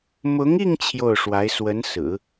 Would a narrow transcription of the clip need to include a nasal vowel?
no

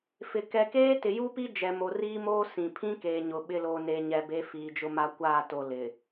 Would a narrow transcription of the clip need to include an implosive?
yes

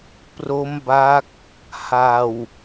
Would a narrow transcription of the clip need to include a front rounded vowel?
no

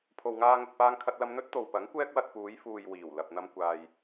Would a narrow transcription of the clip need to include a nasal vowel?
no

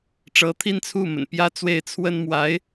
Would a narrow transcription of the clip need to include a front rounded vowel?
no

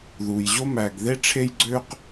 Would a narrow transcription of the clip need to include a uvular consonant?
yes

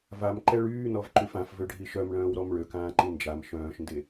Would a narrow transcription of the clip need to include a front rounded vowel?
yes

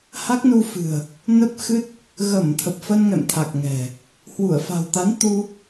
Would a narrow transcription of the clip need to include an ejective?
no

